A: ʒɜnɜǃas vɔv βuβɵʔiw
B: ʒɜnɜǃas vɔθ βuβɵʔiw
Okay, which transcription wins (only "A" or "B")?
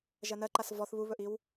B